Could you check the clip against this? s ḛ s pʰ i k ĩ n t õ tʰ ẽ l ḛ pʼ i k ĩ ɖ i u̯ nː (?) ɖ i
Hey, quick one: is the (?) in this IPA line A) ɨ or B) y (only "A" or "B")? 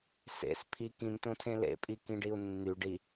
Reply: B